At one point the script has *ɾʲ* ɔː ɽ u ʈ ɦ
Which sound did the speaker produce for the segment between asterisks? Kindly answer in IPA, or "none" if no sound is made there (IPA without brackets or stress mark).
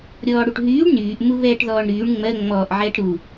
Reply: ɾʲ